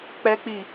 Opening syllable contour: high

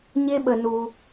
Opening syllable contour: high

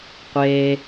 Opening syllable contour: low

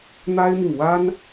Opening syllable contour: high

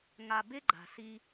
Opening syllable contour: low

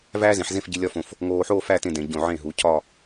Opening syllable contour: high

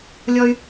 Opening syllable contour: high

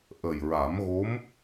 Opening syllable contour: low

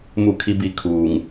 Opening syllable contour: falling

